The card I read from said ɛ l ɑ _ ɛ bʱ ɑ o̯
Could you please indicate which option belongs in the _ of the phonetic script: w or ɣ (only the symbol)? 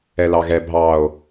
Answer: ɣ